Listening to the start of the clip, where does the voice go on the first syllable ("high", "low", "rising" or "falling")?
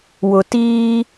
low